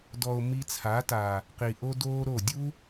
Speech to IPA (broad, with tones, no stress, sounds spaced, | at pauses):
d ɔ˨ o̯ m i˧ t͡sʰ a˨˦ t aː˨ | q i˨ ʔ o˦ d oː˦ ɾ o˦˨ dʲ uː˦